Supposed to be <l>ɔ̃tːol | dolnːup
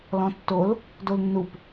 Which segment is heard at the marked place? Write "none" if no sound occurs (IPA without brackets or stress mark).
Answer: l